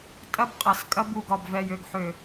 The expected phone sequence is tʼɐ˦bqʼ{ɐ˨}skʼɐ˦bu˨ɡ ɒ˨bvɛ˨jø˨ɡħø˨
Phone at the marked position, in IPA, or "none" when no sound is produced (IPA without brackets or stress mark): ɐ˨